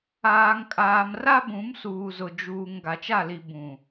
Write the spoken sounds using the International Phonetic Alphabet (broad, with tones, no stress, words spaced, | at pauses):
aː˨ŋkʼaː˨m ra˦bũ˨˦msuː˨ zʊ˨d͡ʒuː˨ŋ ɡa˨t͡ʃa˦˨li˨ bũ˨